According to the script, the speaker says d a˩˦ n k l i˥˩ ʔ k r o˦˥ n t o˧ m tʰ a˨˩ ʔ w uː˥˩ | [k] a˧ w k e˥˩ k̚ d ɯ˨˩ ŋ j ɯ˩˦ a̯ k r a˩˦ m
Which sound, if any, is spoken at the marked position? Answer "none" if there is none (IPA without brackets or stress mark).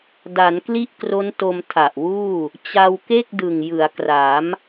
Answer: t͡ɕ